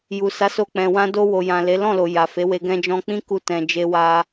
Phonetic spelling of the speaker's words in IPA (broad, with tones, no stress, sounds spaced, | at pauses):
j u˨ s a˨˦ s o˧ k͡p ɛ̃˨ w ã˧ d o˧ w o˨ j ã˨ l e˨˦ l ɔ̃˦˨ l o˨ j a˨ f e˨˦ w e˧ ɡ ɛ̃˧ d͡ʒ ɔ̃˧ k͡p ĩ˦ k u˦ t ɛ̃˧ d͡ʒ e˦ w a˦